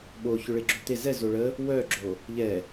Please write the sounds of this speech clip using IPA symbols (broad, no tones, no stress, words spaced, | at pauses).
ɓoçʏ ɭɪɡ͡ǁot̪e zɛ zoɭə | wœɡ͡ǁo | ʎɛ